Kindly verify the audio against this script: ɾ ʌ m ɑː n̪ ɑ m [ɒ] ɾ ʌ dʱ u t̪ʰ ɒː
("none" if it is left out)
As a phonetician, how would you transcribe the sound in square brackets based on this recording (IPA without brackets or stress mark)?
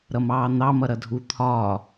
ʌ